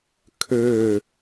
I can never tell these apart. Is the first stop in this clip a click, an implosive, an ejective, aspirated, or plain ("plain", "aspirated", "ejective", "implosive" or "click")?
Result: aspirated